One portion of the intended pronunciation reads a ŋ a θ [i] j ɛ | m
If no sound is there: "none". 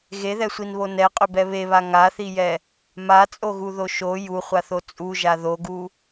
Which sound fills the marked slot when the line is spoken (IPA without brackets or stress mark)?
i